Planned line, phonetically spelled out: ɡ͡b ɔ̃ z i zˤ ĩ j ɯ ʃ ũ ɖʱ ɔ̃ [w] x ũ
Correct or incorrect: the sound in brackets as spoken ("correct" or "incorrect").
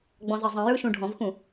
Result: incorrect